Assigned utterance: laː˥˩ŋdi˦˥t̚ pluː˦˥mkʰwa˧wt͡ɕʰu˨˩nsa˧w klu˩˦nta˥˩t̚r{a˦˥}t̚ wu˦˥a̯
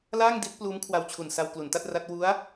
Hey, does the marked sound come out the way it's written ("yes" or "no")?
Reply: yes